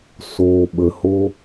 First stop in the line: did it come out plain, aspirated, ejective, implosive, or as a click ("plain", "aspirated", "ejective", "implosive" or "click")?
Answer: implosive